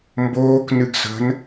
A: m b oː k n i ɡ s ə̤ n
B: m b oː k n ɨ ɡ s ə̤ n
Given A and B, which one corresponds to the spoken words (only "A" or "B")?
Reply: B